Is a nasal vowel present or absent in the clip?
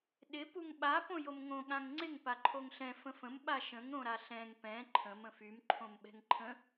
present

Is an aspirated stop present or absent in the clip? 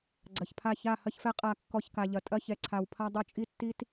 present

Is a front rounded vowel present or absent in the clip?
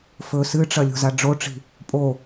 absent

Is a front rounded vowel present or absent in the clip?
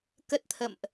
absent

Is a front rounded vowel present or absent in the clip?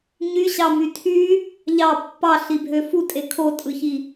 present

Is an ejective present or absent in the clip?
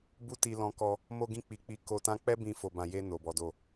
absent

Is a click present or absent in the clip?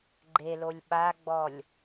present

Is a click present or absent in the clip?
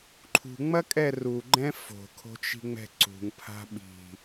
present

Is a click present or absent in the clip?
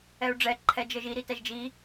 present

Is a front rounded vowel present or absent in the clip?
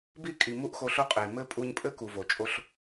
absent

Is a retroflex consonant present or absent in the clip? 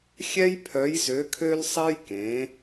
absent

